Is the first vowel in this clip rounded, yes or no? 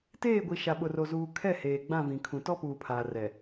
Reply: no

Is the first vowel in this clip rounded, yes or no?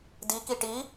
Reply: no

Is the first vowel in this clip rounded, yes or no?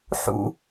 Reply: yes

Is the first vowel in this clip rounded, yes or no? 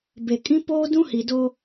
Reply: no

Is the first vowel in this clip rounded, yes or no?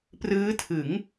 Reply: no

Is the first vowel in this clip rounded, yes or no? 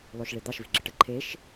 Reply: yes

